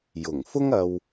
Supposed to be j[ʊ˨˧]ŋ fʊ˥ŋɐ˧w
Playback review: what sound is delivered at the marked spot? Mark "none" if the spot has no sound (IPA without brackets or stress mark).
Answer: ʊ˨˩